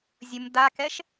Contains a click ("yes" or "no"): no